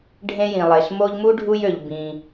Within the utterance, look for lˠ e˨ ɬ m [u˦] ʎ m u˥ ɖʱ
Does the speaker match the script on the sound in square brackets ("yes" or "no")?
no